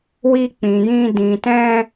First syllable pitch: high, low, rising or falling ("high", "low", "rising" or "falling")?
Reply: high